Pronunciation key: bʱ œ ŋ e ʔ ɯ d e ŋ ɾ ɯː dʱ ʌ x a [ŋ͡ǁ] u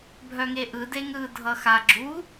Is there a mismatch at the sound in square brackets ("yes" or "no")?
yes